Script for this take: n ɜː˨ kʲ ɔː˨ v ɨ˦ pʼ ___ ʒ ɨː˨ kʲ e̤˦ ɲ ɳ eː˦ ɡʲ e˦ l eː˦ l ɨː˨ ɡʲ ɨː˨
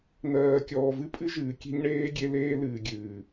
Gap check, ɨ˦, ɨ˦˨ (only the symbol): ɨ˦